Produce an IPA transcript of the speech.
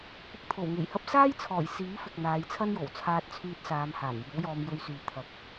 kʷɪ˧k̚t̪ʰo˨˩wŋe˨˩jhɐ˥p̚ saː˥jt͡sʰɔː˨˩j siː˨˥fɪ˨k̚ n̪aː˨˧jt͡sʰɐ˥njo˨˩w t͡sʰaː˧t̚t͡sʰyː˧t̚ saː˨˧mhaː˨˩njiː˨˥wjɔː˧m jɵ˧ɥsyː˨ t̪ʰɐ˨˥k̚

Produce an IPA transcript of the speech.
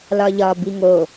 lɒʎɒ biŋo

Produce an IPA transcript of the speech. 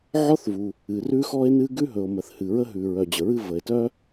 ʕɔ˥θvu˩ | ɨ˩rʉ˥xɔ˥e̯nɨ˥ ɡʉ˥ɦɵ˩o̯mə˩θ hɨ˩ɹə˥ɦʉ˩ ɹœ˩d͡ʑə˩ɹɨ˥ və˩e̯tœ˥

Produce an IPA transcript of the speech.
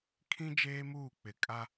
kʰĩ˦ d͡ʒeː˦muː˦˨k͡pɪ˨ kʼa˦

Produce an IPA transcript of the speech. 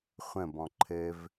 χʷə̃ bɔ̃ǃʰɘv

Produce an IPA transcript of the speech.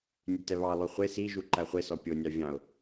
nʲʉtɛβɑlˠy χʷe si ʒuǃæχʷesɔ pʲonʲɑ vʲɑ̃ʊ̯

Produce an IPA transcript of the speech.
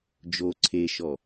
d͡ʒo ǀʰeʃɔ

